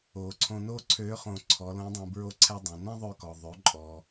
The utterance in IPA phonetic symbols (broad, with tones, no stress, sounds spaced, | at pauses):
oː˩ ǀʰ õ˧ n oː˥ ǀʰ øː˧˥ χ õ˧ ǀʰ ɔ˩˧ l õ˧˥ dˤ õ˧ b ɹ o˧ ǀʰ ɛ˧ dˤ ɛ̃˩ n ɛ̃˥ ðˤ ø˧ k ɔ˩ ðˤ ø˩˧ ǃʼ ɔ˩